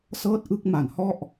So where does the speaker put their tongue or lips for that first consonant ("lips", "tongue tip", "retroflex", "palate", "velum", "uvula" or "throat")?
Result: tongue tip